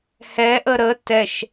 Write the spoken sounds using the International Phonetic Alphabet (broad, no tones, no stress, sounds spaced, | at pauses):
h ɛ ʔ ə ɾ ə t ɛ ʃ